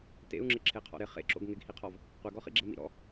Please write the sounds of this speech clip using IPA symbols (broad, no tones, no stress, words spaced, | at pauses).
tḛu̯ŋ͡ǁɪ ǁʰeqʰɔ̰ɾɪ χḛǁo̰ɡ ŋɪɡhiqʰɔv | qʷɛɡɔχḭɡ͡ǁɛ mḭɾɔ̰